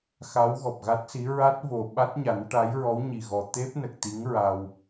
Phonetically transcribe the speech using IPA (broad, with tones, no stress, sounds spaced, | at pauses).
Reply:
x a˧˥ w ɣ ɔ˨˩ p̚ ɣ a˦˥ t̚ s i˧˥ ɹ a˦˥ t̚ v o˨˩ ɓ a˦˥ t̚ ɲ a˨˩˦ n ʈ a˧˥ j ɹ ɔ˧˥ w ɲ i˨˩ ɣ ɔ˨˩ t̪ e˦˥ p̚ n ə˨˩ k̚ t̪ i˧˥ ŋ ɹ a˧ w